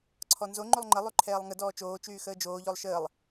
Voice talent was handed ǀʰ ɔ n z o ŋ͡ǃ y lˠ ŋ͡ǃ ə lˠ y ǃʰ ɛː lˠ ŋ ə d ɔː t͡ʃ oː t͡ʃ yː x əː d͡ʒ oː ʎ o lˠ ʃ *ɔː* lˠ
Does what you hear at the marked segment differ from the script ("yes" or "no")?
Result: yes